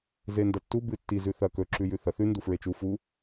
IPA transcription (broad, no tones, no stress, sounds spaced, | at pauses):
z e n d ɐ tː u b ɨ tː i z ʉ θ ɐ k ɵ ǁ ʉ j ʉ θ ɐ θ ʉ n d u f ɹ e t͡ʃ u f u